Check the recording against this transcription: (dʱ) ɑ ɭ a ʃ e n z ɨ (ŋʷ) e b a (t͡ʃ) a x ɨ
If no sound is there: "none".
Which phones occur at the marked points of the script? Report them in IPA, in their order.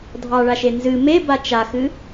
dʱ, m, t͡ʃ

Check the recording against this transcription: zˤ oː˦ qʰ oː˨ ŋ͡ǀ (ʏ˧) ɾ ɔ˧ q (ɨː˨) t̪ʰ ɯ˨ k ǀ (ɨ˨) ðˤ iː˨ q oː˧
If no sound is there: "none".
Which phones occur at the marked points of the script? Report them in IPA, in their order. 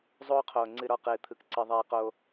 ɨ˧, ɨː˨, ɨ˨

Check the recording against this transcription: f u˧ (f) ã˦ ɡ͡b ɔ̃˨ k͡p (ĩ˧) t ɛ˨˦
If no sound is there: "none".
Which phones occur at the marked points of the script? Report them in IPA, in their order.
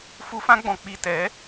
f, i˧

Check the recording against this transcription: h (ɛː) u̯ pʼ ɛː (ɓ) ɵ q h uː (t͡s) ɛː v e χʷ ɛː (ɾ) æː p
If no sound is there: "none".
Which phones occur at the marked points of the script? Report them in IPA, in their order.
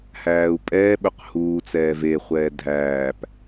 æː, ɓ, t͡s, dʱ

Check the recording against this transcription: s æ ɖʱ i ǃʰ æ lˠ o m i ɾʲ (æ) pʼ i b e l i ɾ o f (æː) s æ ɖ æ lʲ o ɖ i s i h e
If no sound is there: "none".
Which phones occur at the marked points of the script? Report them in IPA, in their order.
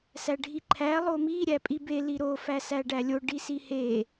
æ, æ

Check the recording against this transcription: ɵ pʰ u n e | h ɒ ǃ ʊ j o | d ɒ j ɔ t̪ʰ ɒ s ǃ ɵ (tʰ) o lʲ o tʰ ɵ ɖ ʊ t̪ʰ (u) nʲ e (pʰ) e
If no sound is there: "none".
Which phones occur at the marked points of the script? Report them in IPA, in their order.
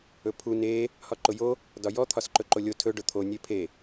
ǃ, o, pʰ

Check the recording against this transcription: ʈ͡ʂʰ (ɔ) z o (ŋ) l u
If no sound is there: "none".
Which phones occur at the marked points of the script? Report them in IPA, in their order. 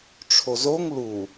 o, ŋ

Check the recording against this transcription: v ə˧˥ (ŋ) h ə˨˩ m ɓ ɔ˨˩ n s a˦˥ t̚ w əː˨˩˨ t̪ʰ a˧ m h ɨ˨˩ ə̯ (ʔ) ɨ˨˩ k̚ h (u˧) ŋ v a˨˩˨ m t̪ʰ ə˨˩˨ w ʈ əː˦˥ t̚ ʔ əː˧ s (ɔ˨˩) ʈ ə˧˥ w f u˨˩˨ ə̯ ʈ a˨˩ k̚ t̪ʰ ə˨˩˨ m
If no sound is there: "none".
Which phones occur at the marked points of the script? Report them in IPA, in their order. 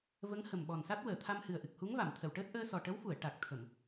ŋ, ʔ, u˧˥, ɔ˨˩

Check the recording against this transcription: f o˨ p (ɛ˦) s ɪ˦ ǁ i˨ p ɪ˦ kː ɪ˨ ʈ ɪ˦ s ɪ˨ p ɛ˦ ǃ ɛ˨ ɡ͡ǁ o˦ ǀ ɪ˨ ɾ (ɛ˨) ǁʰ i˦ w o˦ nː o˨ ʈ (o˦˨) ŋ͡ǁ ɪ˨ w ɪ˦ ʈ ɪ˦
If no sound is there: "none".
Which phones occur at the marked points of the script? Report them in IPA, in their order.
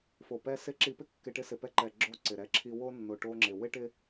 ɛ˦, ɛ˦, o˦

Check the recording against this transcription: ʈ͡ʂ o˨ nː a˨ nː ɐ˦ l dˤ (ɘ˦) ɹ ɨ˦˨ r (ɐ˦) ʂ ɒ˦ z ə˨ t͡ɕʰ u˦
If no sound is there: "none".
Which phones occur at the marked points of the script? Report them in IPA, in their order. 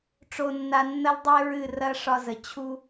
e˦, ɐ˦

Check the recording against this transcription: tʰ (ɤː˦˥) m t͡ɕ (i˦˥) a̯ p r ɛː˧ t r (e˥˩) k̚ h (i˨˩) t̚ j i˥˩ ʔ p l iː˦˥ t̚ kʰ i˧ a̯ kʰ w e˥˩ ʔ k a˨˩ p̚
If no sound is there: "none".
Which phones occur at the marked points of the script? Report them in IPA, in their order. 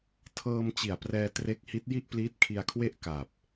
ɤː˧, i˨˩, e˦˥, i˦˥

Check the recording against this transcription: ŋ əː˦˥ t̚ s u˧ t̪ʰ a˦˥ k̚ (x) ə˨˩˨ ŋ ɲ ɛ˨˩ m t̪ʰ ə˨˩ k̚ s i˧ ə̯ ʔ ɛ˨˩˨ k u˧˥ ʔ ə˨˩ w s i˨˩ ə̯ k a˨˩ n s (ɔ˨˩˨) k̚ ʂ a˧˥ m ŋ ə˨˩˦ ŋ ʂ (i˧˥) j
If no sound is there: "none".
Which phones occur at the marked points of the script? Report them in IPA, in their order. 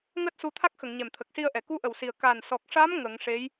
x, ɔ˨˩, e˧˥

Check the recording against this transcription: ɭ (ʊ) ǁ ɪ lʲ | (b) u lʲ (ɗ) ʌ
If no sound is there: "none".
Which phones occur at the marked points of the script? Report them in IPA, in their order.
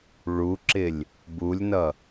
u, b, n

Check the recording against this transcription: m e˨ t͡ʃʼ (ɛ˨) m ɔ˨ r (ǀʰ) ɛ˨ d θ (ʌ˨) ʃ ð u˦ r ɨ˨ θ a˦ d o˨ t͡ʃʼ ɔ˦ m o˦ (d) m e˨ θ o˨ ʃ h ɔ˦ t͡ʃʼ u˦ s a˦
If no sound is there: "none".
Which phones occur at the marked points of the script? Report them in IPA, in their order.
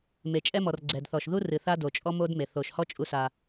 ɛ˦, ɡ͡ǀ, ɔ˨, d

